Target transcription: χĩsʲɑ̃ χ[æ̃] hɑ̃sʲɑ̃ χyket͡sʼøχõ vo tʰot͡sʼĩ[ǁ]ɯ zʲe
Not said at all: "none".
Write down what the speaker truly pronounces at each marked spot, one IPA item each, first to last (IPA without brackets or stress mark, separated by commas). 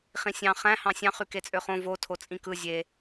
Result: æ̃, k